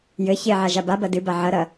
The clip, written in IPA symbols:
jɘ çeʕa ʒababɐ dɨba ʕɐɾɐ

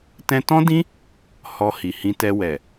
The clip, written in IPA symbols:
tɛ̃˧tɔ̃˦dĩ˦ | hɔ˧ hi˨hĩ˧tɛ˧ wɛ˨

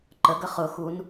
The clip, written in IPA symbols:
ǃə ɡəχʊxun

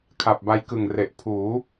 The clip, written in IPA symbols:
kʰa˨˩p̚ba˧jkɯ˨˩ŋre˨˩ʔ pʰuː˩˦

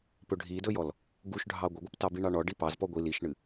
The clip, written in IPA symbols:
pɵɖʱidɵjɔl | ɡuʃɖʱɑ ɡʷəɡʷɨptɑbi ɳɑɳɔ ɖipɑz pɔɡʷi liʃɳɨ

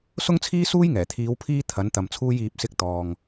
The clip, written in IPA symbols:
sʊ˥ŋt͡sʰiː˥ suː˥jŋɛː˨˩t̪ʰiː˨˧w pʰiː˥ t̪ʰɐ˨˥nt̪ɐ˨mt͡sʰuː˥j iː˧p̚ sɪ˥k̚t̪ɔː˨ŋ

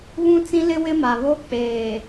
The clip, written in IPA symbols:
βũ˦t͡sĩ˦lɪ˦ wɪ˦ma˨βo˦ k͡peː˨

